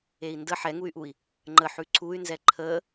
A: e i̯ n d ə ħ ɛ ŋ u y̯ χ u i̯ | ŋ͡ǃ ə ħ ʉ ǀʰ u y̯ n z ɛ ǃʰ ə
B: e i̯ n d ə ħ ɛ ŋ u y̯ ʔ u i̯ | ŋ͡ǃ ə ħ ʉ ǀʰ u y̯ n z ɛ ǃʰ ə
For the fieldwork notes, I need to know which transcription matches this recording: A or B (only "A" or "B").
B